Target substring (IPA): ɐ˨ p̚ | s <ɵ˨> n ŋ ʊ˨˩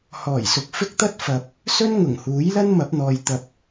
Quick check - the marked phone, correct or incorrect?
incorrect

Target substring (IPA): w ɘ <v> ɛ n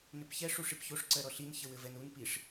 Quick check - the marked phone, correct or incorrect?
correct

